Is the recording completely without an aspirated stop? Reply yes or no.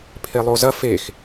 no